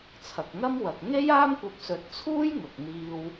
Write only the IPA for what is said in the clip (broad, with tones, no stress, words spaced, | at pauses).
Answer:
t͡sʰɐ˨k̚ŋɐ˥mwɐ˨k̚ ŋe˥jaː˥mkʷɐ˧p̚ sɵ˨˥t̚t͡sʰuː˥j ŋʊ˨k̚ n̪iː˧w